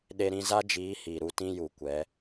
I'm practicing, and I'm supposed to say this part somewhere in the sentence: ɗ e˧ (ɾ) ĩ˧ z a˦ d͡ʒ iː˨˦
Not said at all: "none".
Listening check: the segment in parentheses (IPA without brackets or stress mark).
ɾ